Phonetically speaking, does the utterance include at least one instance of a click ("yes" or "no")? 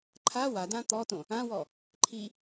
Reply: yes